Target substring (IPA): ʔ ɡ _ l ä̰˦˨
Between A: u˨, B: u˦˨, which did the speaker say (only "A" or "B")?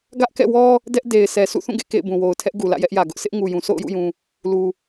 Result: A